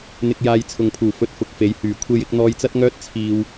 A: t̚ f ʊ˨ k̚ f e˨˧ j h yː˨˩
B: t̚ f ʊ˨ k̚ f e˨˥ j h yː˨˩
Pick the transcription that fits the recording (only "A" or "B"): A